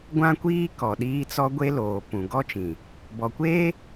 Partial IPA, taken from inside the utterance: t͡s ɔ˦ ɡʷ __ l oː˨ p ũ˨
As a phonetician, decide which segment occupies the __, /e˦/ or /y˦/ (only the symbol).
e˦